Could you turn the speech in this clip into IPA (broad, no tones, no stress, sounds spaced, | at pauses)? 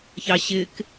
ç ɑ ɕ ɪ k